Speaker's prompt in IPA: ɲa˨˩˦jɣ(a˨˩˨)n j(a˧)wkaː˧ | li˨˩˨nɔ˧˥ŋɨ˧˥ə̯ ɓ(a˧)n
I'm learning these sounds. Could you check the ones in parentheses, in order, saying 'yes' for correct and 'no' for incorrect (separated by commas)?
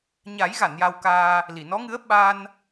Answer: yes, yes, yes